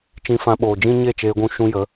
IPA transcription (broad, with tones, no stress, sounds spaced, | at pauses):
t͡ʃ ĩ˧ f ã˧ ɓ oː˨ d͡ʒ ĩ˦ ɲ e˦˨ t͡ʃ eː˧ ɡʷ ũ˧ ʃ ũ˧ j ə˨˦